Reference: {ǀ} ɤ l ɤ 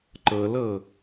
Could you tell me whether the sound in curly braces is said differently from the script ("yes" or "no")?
yes